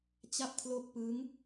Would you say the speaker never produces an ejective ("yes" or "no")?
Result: yes